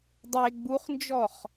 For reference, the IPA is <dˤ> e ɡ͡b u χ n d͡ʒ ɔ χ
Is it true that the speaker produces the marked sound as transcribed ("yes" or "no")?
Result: yes